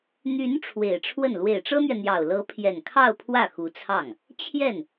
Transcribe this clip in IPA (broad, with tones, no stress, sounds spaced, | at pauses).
n̪ y˧˥ n ʈ͡ʂʰ w e˨˩ ɪ̯ ʈ͡ʂʰ w ə˥˩ n l w e˨˩ ɪ̯ ʈ͡ʂ ɤ˥ n̪ ɥ ɛ˨ n̪ j ɑ˨˩ ʊ̯ l ɤ˧˥ pʰ j ɛ˨˩ n kʰ ɑ˥˧ ʊ̯ pʰ w ä˥˩ x u˧˥ t͡sʰ ɑ˥˩ ŋ | t͡ɕʰ j ɛ˥˩ n